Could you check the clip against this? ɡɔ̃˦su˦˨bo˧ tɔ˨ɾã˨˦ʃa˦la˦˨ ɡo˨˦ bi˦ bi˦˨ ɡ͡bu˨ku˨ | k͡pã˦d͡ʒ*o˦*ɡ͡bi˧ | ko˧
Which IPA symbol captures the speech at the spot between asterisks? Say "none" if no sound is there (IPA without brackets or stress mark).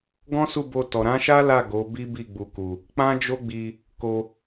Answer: o˦